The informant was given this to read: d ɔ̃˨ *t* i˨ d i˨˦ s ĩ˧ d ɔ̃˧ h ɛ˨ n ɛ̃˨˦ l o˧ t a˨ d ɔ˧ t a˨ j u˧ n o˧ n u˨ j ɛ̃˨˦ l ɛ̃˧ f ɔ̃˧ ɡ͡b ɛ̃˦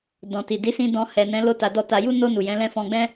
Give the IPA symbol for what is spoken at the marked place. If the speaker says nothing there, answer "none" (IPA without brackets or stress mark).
t